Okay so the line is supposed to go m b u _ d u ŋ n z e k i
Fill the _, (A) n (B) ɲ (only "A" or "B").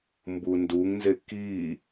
A